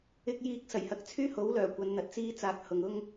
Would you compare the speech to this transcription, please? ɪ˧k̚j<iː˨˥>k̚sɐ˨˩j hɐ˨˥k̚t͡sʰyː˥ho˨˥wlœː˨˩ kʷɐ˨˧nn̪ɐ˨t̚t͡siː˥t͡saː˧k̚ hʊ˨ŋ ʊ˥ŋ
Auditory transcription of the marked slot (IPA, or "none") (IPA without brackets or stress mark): iː˧